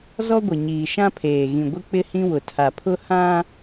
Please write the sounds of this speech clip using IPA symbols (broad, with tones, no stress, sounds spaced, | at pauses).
z ɔ˦ ɡʷ ɪ˨ ɲ iː˨ ʃ ã˦ pʰ eː˨ ɣ ĩ˨ ɡʷ ɪ˦ k͡p ɪ˦ h ĩ˦ w ʊ˨ tʰ a˨ pʰ ʊ˦ h ã˦